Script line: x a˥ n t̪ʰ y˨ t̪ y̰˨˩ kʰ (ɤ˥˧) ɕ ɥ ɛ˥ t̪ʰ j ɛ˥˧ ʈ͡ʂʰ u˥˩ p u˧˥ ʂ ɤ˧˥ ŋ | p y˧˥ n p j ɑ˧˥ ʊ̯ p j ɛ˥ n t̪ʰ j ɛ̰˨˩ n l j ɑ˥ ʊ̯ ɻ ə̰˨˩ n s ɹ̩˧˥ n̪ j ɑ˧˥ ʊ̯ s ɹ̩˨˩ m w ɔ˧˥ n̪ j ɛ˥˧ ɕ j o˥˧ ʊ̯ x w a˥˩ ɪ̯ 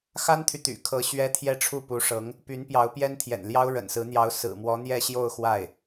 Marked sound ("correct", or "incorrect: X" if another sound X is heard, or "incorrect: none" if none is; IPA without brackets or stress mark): incorrect: ɤ˧˥